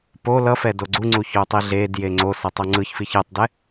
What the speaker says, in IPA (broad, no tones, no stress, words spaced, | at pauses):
po lʌfɛ doɡ͡ǀuŋ͡ǀu çotˤiɮedje ŋ͡ǀosʌ tˤʌŋ͡ǀɯçfi çɛtˤdɛ